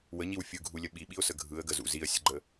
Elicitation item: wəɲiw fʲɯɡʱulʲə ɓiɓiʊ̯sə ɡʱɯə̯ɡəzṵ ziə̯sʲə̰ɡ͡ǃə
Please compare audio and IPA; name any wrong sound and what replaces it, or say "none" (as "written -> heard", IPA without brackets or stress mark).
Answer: none